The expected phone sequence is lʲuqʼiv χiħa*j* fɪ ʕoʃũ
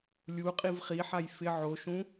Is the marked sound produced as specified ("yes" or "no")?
yes